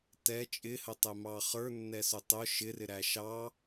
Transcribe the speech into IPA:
t ɛ t͡ʃʼ ɪ h ə tˤ ɛ m ɑ χ ə˞ nː ɛ s ʊ tˤ ʊ ʃ ɪ r ɪ ɾ æ ʃ ɑ

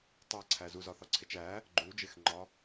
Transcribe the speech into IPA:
tˤ æ ǀʰ æ z u z ɒ θ ɒ ǀʰ e t͡ʃ æ | ɡ͡ǃ u d͡ʒ e x ŋ͡ǃ ɒ

